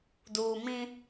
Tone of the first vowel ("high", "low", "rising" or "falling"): low